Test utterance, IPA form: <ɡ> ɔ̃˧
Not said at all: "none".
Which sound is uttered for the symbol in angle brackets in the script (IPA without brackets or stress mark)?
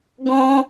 ɡ